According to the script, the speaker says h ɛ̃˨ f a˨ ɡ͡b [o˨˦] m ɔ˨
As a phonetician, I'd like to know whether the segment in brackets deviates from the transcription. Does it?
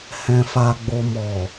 yes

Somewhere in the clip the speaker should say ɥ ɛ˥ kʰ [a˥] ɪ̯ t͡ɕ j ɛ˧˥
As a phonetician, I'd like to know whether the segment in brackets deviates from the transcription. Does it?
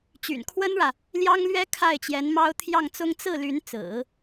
yes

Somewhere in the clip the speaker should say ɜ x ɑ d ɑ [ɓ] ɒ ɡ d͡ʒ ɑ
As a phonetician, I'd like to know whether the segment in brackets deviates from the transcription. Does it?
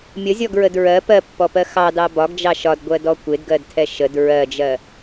yes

